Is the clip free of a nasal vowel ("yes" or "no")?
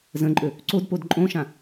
no